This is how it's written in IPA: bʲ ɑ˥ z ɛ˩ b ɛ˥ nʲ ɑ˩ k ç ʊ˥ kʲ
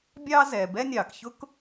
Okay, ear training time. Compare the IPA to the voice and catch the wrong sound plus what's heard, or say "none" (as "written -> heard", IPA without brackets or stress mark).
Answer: kʲ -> k